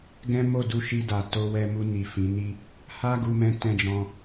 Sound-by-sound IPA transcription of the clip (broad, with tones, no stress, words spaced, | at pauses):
ɡɛ̃˦ mo˦˨du˧ʃi˧da˨ to˧ wɛ˧mu˧ni˨ fĩ˨˦ni˦ | ha˦ɡu˧ mɛ̃˧tɛ̃˧d͡ʒɔ̃˧